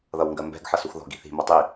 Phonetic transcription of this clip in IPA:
ð ʌ w ŋ ɡ ɜ m b ɛ̤ ɡ ħ ʌ s u x ð ɔ̤ ɡ i̤ θ i̤ m ʌ tˤ i

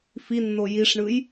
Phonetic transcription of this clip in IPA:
f i nː o j i ʂ ɳ ɯ j

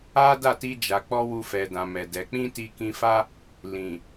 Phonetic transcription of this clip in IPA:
a˦ d a˦˨ t i˧ d͡ʒ a˨ k͡p ɔ˧ w u˧ f ɛ˨ d ã˨ m ɛ˨ d ɛ˨˦ k͡p ĩ˦ t i˧ k ĩ˧ f a˦ | l ĩ˨

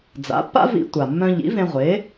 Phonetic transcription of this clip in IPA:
d͡z a̰˩˥ pː a̰˥ v ḭ˧ tʷ a˩ mː œ̃˧ ʎ ḭ˩˥ v ẽ˧ ʁʷ e˩˥

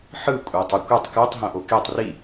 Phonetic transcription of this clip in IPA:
ħ ɯ kʷʼ a tˤ ʌ kʷ e tˤ k o tˤ ɦ õ ʔ o k e tˤ r i

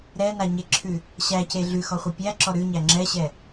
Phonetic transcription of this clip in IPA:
ɾ ɛ n a ɲ e ǁʰ ʉ | ɕ æ c e ɮ ʉ x ɔ χʷ ʌ pʲ æ ǁ ɔ ɾ ʉ ɲ æ ŋ͡ǁ ɛ ɕ ɛ

